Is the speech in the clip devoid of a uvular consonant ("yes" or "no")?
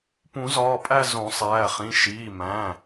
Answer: no